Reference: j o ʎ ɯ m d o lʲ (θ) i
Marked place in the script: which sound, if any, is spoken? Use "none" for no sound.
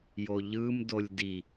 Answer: d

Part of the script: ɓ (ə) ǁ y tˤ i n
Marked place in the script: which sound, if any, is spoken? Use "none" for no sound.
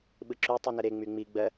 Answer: ɯ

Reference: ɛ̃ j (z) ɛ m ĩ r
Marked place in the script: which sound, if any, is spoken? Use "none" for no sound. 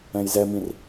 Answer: z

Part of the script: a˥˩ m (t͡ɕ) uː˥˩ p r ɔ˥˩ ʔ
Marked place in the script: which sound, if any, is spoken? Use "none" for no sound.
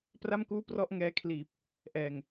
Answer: k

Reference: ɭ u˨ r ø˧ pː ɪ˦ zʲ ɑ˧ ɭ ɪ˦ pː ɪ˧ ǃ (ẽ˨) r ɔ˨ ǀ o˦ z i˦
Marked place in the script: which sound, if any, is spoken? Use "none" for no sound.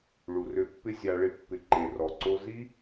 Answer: e˨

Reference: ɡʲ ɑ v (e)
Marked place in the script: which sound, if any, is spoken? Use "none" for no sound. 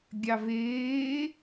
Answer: eː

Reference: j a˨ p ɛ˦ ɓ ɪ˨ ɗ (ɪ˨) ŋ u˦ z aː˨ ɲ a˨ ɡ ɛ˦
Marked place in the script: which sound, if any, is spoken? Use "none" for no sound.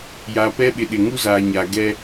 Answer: ɪ˨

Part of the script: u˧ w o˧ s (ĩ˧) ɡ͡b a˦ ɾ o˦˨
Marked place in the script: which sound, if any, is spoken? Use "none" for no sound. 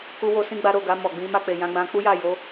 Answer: ĩ˦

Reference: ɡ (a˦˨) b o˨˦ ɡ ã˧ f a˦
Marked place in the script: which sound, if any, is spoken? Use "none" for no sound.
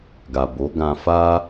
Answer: a˨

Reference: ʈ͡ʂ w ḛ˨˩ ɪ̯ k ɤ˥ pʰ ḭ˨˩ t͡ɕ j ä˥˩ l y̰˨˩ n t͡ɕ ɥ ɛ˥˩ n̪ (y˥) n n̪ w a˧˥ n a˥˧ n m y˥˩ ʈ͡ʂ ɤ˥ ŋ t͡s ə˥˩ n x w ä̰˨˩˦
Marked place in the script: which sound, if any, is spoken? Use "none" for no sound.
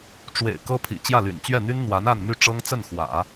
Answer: y˥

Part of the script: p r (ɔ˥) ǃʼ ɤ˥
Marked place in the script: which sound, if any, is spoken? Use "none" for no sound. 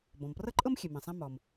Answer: ɤ˥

